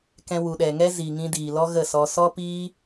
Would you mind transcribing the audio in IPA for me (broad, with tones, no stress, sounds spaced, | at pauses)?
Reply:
k ɛ̃˧ w u˨ ɗ ɛ˨ ŋ ɛ˦ z i˨ ŋ ĩ˧ d iː˨ l ɔ˦ ɣ ə˦˨ s ɔ˧ s ɔ˦ p iː˦